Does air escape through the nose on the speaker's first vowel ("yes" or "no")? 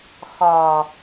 no